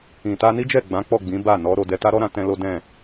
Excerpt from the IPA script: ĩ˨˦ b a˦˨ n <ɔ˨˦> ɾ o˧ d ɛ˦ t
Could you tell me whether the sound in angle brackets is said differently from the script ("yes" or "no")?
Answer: no